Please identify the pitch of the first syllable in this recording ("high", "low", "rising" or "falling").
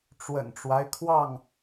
low